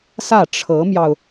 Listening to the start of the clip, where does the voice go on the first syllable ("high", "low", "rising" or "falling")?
falling